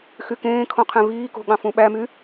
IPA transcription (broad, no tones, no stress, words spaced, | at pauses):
xykẽːkʰõ qʰẽviːko̤ ɠɑ̃fũɓæmy